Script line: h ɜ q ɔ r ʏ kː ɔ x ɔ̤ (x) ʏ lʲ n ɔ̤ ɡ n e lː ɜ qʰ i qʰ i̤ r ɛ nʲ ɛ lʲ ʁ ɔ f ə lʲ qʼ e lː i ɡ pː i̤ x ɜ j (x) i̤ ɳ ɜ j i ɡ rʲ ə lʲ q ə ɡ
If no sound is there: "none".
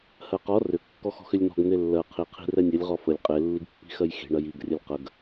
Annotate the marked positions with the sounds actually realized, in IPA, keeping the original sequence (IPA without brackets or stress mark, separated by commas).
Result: x, x